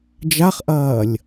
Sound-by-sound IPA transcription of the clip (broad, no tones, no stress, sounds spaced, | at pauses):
d͡ʒ a χ ʔ ɐː lʲ